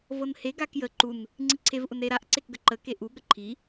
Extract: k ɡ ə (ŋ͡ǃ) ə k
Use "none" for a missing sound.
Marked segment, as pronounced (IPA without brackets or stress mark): ǃ